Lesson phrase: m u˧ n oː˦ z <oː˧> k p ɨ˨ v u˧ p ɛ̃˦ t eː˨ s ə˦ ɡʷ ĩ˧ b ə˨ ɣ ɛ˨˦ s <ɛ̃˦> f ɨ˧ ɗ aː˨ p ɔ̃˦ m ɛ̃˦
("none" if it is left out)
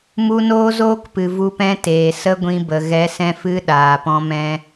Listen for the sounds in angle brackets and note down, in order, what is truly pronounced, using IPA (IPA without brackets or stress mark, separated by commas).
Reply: oː˦, ɛ̃˧